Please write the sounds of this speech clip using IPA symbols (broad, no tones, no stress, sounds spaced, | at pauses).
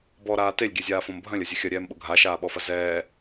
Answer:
b ɔ ɾ aː t e lʲ ɡʲ ɛ zʲ aː f õ m bʱ ɐ̃ lʲ ɐ zʲ ɐ xʲ ɐ ɾʲ ɛː m ɓ ʊ ɡʱ a ʃ aː ɓ ɔ f ɐ z ɛː